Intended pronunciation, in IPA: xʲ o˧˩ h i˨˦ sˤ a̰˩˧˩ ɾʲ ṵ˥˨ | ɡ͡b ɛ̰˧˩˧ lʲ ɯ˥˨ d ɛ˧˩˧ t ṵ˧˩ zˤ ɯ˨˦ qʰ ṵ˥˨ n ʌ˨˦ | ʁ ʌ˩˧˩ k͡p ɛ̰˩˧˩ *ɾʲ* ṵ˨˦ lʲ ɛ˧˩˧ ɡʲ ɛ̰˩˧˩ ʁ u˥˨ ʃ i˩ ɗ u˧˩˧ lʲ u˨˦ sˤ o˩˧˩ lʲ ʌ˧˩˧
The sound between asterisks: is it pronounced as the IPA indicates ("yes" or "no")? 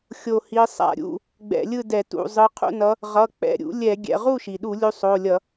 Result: yes